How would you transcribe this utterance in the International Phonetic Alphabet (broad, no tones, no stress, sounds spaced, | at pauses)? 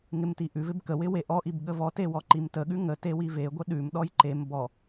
ŋ ɪ m t i ʔ ʉ v ɪ b k ə w ɪ w e ʔ ɔ ʔ i b ɠ ə v ɔ t e w ɔ ǃ i m t ə ɠ ʉ ŋ ə t e w i v e ɡʷ ə ɗ ʉ m ɗ ɔ j ǃ e m b ɔ